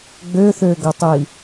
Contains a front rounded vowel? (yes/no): yes